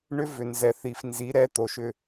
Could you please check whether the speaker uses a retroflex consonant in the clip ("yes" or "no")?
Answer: yes